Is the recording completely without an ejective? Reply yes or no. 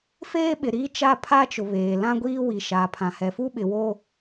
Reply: yes